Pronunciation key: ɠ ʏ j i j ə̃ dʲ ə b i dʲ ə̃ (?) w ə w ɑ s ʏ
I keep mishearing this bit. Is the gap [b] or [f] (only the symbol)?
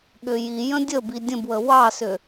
b